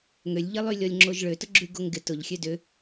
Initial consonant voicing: voiced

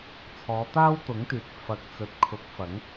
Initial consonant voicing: voiceless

